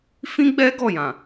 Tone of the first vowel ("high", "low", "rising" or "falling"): high